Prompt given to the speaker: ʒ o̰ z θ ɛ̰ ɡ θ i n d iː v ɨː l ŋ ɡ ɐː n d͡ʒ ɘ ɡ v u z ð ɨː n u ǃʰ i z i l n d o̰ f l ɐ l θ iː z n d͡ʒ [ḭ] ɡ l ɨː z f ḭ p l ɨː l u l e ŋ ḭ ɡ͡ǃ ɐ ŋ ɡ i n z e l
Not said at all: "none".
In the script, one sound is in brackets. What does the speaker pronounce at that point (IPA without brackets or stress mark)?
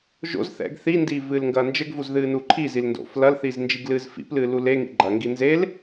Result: i